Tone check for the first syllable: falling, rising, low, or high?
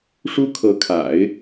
high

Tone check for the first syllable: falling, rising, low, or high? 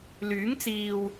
rising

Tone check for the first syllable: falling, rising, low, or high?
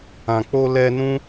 low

